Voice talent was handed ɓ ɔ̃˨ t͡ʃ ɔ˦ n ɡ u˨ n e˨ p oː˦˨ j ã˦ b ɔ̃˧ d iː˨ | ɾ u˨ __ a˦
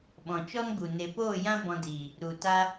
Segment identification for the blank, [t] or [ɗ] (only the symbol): t